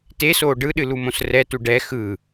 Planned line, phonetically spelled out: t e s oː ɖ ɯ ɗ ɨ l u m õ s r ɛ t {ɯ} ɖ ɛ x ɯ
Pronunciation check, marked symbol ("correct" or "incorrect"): incorrect